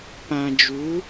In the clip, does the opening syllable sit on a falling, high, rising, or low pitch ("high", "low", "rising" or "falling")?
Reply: low